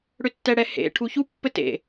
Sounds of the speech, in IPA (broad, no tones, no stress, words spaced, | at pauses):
ɽʏtːɛɽɛhḛ ʈʰuçu pːɘtḛ